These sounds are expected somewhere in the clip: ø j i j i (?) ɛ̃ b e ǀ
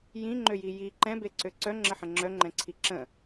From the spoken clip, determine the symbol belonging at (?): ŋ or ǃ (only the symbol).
ǃ